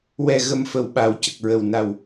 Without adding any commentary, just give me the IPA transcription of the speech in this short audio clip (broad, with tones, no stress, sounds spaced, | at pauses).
w ɛ˨˩ ɣ ə˨˩ m f ə˨˩˨ w ɓ a˨˩˨ w c ə˨˩ k̚ ɹ ə˨˩ w n a˨˩ w